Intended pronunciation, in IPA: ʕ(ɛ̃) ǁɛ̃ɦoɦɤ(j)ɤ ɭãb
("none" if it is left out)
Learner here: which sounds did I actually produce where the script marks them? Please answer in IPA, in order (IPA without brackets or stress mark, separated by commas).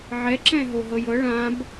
ɛ, j